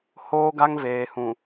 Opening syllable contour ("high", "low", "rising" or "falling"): high